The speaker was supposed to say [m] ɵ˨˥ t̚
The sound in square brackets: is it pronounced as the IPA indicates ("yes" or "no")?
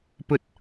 no